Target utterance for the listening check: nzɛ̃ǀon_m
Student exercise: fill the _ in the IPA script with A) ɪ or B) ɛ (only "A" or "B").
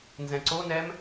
B